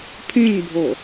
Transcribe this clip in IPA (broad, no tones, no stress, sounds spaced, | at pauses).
pʰ ĩ ɲ bʱ o